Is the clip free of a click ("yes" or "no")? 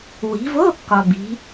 yes